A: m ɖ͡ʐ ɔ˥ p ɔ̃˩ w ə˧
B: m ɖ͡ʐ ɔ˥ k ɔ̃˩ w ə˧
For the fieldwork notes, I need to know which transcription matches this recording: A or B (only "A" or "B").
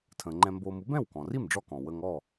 B